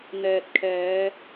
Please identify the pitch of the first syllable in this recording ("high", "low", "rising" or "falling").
low